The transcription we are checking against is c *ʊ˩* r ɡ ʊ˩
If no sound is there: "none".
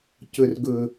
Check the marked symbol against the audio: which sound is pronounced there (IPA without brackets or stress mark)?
ʊ˩